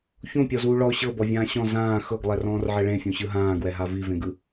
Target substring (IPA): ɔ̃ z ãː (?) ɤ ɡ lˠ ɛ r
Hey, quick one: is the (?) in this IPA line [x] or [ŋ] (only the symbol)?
x